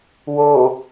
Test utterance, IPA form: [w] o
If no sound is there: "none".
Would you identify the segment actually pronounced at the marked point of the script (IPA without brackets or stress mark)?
w